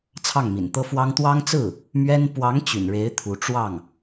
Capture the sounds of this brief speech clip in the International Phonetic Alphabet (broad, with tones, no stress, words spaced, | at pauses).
t͡sʰɑ˥˩ŋmḭ˨˩nt̪ɤ˥fwɑ˥ŋ t̪wɑ˥ŋt͡sɹ̩˥˩ | mɥɛ˥n pwɑ˧˥ŋ t͡ɕy̰˨˩nɻe˧˥ɪ̯ t̪ʰu˧˥ ʈ͡ʂwɑ˥˩ŋ